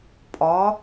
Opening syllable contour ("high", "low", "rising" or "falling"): rising